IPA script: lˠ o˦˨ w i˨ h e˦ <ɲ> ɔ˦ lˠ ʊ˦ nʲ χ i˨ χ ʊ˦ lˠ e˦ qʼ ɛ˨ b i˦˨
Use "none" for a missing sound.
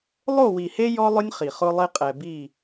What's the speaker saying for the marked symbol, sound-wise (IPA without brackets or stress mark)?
j